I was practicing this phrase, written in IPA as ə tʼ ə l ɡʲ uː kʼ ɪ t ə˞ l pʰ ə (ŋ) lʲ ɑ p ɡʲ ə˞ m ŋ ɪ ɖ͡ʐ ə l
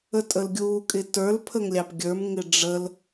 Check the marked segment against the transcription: correct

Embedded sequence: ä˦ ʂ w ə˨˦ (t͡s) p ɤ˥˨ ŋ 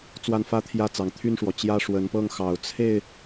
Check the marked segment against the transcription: incorrect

